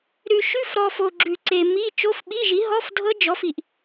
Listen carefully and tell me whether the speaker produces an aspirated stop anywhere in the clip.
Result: no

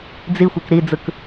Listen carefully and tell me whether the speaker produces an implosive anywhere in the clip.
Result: no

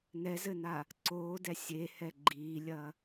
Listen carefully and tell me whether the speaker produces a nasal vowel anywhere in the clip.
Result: no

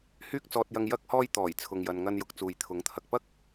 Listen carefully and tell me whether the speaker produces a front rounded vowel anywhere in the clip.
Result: yes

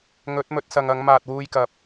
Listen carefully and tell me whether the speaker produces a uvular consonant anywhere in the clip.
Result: no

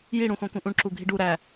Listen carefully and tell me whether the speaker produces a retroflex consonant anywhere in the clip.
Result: yes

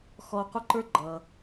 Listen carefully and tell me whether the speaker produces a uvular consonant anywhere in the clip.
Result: yes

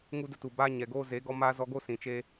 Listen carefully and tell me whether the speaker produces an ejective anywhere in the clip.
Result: no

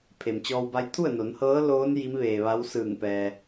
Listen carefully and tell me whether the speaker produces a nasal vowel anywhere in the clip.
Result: no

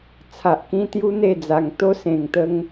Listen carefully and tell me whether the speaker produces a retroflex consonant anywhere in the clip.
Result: no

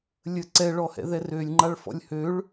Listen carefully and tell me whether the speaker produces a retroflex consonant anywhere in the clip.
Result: yes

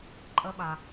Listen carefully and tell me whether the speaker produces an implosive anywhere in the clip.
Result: yes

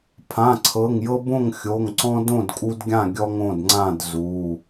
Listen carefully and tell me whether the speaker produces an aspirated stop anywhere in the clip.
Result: yes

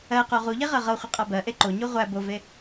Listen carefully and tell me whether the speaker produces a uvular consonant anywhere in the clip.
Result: yes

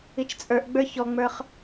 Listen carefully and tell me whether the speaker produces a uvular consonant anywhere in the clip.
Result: yes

